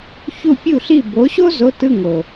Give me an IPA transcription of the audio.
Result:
ç u˥˩ pʲ u˥˩ ɬ i˥˩ b o˨˥ ɕ o˥ z o˧˥˧ t ɯ˧˥˧ ŋ o˨˩

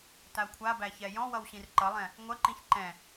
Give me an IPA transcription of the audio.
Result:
t a kʷʰ a b æ ç ɛ j ɔ̃ w ʌ w ɕ ĩ r ǃ ʌ lˠ ɛ̃ | ŋʷ ɐ ǃ ĩ ç ǃ ɛ̃

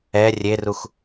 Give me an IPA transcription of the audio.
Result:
ɛ rʲ e r u x

